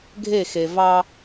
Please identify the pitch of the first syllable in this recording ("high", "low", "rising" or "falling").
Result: falling